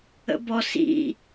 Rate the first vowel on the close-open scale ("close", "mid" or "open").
mid